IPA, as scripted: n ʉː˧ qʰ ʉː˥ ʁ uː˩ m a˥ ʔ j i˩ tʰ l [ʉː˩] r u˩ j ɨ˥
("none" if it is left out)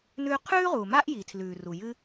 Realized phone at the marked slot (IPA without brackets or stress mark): ʉː˩